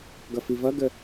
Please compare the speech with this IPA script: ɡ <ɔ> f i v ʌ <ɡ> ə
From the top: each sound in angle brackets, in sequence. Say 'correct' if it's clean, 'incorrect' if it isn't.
incorrect, correct

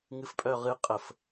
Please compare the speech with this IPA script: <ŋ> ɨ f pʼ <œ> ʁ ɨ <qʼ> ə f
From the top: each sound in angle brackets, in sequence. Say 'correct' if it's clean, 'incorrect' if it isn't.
correct, correct, correct

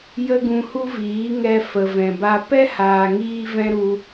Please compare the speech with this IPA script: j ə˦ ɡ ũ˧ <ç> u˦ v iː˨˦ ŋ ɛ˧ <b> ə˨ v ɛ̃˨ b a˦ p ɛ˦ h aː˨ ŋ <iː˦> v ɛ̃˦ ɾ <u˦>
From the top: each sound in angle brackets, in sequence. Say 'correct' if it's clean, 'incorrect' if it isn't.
incorrect, incorrect, correct, incorrect

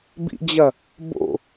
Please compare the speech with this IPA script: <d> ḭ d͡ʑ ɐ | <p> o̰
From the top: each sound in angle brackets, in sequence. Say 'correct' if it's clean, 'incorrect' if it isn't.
incorrect, incorrect

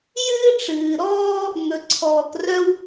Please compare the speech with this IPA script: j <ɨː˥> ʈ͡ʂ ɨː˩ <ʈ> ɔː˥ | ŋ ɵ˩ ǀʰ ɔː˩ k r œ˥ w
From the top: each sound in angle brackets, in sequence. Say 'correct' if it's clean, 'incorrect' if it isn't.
correct, incorrect

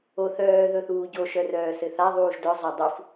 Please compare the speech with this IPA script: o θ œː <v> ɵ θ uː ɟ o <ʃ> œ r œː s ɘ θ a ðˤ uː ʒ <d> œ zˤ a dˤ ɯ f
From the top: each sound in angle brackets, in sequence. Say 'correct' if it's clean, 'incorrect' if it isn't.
incorrect, correct, correct

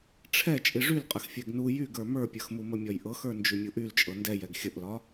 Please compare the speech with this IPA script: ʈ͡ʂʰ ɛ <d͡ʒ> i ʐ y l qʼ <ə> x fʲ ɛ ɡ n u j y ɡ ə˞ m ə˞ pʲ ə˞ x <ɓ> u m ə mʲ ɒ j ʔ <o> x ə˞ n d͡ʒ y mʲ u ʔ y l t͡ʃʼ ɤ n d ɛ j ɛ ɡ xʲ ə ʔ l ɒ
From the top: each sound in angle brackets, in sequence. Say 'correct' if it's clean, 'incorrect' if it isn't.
incorrect, correct, incorrect, incorrect

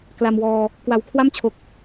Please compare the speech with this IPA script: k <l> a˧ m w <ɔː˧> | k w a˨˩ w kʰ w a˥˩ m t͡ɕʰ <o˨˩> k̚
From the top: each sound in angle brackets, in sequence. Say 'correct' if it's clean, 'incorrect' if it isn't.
correct, correct, correct

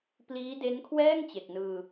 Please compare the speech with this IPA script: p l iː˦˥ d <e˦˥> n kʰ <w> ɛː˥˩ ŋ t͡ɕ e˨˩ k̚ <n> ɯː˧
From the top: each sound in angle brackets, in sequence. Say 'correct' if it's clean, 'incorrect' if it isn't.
correct, correct, correct

